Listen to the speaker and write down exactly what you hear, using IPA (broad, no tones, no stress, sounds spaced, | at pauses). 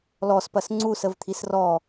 l ɔ s p ɐ s ŋ͡ǀ u s ə v t̪ʰ i s r ɔ